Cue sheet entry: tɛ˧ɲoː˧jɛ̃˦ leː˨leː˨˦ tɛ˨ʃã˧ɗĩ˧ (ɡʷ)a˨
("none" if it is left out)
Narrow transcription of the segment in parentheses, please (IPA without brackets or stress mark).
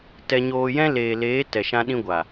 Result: ɡʷ